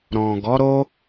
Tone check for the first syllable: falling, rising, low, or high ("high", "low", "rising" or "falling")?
low